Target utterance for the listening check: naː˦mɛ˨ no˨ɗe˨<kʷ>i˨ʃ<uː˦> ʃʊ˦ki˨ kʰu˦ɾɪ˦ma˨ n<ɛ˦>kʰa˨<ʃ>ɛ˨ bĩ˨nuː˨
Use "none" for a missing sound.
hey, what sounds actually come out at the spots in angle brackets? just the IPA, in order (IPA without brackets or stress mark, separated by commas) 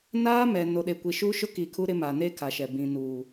kʷ, uː˦, e˦, ʃ